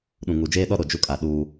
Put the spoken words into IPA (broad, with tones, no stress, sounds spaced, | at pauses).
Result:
ɗ ũ˨ ŋ u˨ d͡ʒ eː˦ ɗ ɔ˦ ɾ o˨ d͡ʒ u˦ kʼ a˨ ɗ uː˦